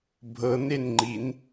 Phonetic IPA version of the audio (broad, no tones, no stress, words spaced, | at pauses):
bʱɤnenŋ͡ǃin